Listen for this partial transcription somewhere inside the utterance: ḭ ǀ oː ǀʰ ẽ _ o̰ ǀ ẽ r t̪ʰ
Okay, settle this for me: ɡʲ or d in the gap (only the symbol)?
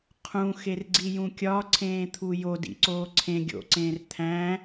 ɡʲ